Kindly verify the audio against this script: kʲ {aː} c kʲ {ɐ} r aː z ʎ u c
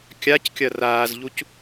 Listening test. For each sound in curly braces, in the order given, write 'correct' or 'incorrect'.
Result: incorrect: a, correct

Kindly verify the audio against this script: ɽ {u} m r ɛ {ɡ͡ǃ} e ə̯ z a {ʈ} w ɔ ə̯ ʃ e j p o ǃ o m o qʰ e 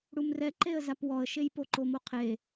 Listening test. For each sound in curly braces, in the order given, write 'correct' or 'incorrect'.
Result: correct, incorrect: ǃ, incorrect: p

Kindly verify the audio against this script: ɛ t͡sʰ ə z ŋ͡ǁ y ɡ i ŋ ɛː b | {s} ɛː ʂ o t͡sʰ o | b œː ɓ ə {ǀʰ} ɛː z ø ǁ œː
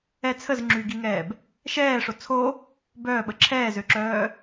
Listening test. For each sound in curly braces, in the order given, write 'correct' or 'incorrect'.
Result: incorrect: ʃ, incorrect: ǁʰ

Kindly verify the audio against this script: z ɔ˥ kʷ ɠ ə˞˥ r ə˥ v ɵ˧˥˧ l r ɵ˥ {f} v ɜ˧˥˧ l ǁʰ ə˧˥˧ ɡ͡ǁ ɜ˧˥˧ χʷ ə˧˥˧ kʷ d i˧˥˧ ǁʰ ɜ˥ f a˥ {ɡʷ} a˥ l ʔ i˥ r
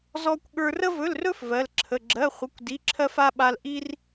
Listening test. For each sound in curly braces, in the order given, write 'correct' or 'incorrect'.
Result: correct, incorrect: ɓ

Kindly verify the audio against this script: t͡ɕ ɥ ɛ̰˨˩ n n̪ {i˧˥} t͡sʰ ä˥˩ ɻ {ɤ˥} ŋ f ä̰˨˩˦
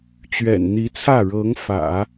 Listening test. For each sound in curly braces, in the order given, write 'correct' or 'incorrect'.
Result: correct, incorrect: ɤ˧˥

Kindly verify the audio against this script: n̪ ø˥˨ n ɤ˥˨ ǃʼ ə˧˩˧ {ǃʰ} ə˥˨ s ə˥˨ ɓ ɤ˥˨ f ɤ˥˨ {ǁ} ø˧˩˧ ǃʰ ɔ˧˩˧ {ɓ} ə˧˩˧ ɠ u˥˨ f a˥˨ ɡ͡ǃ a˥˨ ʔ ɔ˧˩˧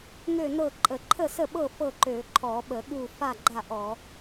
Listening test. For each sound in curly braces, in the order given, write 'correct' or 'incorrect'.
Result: correct, incorrect: ǃ, correct

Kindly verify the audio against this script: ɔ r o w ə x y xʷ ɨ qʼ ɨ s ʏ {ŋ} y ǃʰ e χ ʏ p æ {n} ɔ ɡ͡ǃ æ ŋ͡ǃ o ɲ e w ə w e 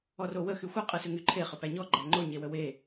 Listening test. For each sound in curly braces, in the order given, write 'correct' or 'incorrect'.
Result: correct, incorrect: ɲ

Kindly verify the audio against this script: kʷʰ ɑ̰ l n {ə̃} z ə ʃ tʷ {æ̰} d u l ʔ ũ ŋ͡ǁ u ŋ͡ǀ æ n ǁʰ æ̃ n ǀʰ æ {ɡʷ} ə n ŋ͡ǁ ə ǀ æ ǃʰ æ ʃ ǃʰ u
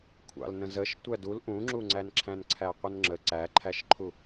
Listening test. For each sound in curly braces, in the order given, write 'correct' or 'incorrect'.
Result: correct, incorrect: æ, incorrect: qʷ

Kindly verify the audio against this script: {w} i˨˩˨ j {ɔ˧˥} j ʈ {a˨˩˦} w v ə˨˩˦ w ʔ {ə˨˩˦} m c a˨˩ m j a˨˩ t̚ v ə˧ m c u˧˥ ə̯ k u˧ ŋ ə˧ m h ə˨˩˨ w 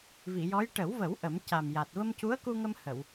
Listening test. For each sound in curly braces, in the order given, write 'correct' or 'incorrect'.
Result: incorrect: v, correct, incorrect: ə˨˩˦, correct

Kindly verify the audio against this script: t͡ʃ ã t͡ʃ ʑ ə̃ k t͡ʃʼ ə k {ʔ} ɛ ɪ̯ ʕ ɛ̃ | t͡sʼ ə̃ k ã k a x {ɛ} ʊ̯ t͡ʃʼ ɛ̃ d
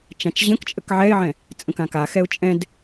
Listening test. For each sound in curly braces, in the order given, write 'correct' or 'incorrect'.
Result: incorrect: ʕ, correct

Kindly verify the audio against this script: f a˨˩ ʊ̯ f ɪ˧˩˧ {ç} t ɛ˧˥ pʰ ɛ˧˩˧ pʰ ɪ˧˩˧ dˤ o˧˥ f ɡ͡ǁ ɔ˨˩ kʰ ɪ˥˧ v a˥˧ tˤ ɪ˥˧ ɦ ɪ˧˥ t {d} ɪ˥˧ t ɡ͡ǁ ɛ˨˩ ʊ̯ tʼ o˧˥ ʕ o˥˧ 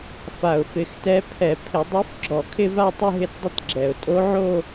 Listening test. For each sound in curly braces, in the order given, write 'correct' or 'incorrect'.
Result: incorrect: x, incorrect: dˤ

